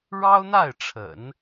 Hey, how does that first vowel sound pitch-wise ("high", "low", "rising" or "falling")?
high